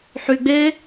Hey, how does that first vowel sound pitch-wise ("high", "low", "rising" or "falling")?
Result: low